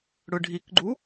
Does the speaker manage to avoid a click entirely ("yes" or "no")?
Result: no